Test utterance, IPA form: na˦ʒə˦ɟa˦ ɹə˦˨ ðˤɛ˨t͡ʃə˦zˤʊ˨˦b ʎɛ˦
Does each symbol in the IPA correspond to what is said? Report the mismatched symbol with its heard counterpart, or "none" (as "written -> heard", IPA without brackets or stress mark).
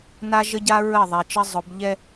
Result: none